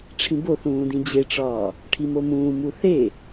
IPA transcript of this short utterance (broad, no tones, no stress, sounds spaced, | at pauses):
ʈ͡ʂʰ ĩ b o θ ũː d ĩ d͡ʑ e ʈ͡ʂ ɒː | ʈʰ i m o m ũː m u θ e